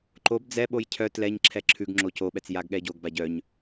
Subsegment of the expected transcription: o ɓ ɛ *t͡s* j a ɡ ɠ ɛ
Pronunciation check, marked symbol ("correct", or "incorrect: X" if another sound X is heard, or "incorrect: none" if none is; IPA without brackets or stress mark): correct